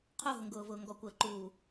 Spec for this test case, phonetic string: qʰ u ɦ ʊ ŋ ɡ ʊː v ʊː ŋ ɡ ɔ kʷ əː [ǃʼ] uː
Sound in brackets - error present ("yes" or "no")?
yes